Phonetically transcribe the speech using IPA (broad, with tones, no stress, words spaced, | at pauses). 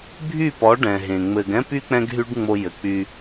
bʱy˦˨pɔ˨˦ ɖɛ̃˨ɦẽ˨ŋ͡mɘ˧ɡ ɛ̃˦py˦ k͡pɛ̃˦ɡɦy˦ɖŋ͡mo˧ jɘ˨k͡py˧